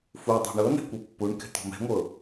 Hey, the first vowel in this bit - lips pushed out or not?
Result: yes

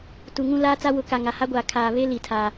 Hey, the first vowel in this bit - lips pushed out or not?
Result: yes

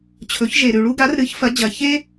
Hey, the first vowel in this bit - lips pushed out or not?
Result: yes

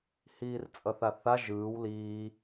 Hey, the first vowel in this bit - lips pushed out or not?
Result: no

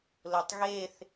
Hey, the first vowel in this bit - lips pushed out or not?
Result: yes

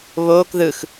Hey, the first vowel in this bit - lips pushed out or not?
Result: yes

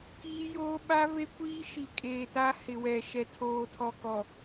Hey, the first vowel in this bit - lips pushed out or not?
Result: no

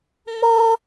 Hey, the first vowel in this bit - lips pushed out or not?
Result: yes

